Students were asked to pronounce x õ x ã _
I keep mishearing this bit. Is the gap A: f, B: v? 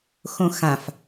A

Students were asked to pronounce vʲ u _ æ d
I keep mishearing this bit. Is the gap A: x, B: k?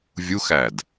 A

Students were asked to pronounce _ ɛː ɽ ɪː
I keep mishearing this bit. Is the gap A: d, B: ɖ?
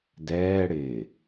A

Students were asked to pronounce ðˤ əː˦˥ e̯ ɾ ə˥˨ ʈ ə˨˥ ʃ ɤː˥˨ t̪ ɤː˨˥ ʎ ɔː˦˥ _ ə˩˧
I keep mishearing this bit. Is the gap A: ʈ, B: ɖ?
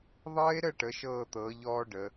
B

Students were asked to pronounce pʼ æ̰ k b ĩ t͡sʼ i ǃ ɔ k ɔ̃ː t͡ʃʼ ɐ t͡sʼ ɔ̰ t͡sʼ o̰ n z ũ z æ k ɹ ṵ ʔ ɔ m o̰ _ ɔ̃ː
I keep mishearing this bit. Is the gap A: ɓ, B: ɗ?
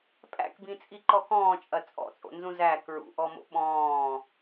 A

